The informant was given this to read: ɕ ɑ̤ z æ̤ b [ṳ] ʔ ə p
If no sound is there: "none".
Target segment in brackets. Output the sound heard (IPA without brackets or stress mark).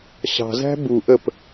u